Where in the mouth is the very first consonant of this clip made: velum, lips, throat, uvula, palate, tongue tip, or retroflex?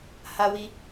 throat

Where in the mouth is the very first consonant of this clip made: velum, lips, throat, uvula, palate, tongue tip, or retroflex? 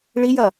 retroflex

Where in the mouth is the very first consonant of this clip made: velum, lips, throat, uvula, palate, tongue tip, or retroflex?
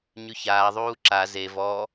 palate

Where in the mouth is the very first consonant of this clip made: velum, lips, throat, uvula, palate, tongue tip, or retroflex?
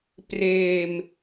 lips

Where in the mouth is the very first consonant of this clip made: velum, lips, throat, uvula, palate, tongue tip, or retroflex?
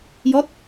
palate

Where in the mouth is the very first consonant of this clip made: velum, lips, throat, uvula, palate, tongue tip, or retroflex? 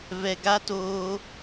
lips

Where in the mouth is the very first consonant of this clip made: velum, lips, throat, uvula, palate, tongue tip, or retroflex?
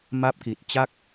lips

